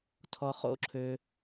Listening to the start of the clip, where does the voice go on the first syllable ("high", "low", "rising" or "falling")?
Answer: low